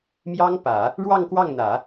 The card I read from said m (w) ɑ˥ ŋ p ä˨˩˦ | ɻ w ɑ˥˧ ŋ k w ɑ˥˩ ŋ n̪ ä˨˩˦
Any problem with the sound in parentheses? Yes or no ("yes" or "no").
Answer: yes